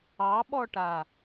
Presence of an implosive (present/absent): present